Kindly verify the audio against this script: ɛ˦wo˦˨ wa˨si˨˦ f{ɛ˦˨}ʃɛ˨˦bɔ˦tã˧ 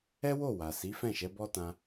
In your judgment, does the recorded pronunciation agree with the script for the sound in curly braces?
no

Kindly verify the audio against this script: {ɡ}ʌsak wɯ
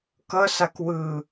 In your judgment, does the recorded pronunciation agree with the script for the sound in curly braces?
no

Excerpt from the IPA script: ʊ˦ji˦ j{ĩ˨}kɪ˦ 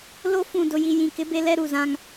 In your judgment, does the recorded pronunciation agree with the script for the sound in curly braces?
yes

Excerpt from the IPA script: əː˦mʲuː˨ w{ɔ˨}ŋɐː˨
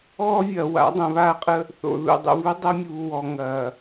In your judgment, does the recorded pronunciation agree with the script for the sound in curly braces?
yes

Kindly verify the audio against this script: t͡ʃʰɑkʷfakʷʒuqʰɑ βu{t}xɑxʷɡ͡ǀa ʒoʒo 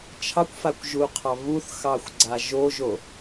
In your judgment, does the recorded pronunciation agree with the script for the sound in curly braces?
no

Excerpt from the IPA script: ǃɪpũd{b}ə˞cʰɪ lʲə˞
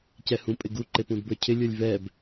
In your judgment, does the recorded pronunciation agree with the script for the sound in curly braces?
yes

